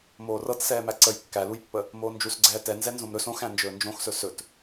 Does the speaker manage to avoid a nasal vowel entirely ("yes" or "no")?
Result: no